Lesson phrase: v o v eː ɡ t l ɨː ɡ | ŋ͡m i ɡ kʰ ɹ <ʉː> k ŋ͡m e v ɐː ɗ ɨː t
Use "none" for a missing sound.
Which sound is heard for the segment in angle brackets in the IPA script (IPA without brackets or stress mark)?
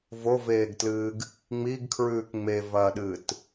ʉː